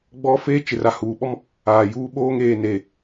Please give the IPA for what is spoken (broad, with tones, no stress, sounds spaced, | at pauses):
ɡ͡b ɔ˦ f eː˦ t͡ʃ ɪ˨ r a˨ h uː˨ ɓ ɔ˦ m | aː˨ j uː˦ ɓ oː˦ ŋ eː˨ n e˨